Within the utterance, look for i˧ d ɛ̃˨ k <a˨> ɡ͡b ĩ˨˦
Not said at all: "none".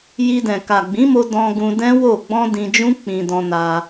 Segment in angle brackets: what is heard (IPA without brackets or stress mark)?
a˨